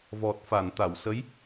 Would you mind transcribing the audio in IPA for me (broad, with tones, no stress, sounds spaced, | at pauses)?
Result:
v ɔ˨˩ t̚ f a˨˩˨ n t̪ a˨˩˨ w s ə˧˥ j